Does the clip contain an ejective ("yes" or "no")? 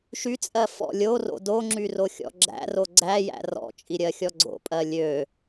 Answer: yes